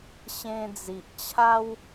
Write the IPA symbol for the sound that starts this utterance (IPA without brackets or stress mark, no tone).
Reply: ɕ